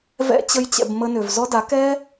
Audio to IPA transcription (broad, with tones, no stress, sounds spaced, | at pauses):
v ɛ̰˦ t͡ɕ ə˦ j t͡ɕ ɛ̰˧ b m ə˧ n ø˨ v z ɔ˦ d a˨˦ k ɛ˦